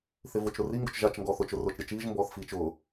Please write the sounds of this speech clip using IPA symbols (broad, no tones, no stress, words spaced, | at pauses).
θɪvʊt͡ʃɾʊ riŋɡʊt͡ʃ ʒat͡ʃŋɡɔːθ ʊt͡ʃʊ rʊːt͡ʃɾʲɛt͡ʃiːʒ mbɔːθfiːt͡ʃʊː